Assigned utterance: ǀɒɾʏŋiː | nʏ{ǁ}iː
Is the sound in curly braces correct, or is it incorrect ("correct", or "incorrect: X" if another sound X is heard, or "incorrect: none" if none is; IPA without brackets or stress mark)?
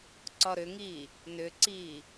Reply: incorrect: ǀ